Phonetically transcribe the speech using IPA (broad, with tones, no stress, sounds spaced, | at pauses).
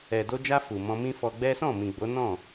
ɛ˨ d o˧ d͡ʒ a˧ f u˨ m ɔ̃˧ m ĩ˦ f ɔ˧ ɡ͡b ɛ˦ s ɔ̃˦˨ m ĩ˨ ɡ͡b o˨˦ n ɔ̃˦˨